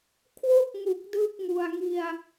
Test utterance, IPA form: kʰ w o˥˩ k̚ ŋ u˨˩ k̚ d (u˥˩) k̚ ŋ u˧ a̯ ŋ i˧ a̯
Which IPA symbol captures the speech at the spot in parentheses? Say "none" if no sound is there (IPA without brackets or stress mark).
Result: ɯ˥˩